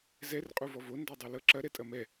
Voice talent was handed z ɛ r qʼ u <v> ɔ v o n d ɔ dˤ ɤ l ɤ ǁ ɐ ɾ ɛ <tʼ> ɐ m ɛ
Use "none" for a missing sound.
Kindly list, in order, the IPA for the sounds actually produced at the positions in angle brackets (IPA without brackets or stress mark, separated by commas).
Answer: v, tʼ